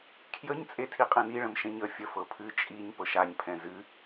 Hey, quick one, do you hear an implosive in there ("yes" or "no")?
no